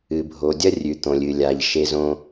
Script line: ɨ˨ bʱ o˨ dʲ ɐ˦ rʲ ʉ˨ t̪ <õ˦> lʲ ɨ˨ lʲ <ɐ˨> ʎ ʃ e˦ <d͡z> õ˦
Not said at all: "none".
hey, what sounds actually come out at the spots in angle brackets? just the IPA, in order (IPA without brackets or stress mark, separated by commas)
õ˨, a˨, z